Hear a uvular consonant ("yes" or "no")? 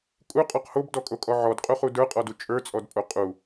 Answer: yes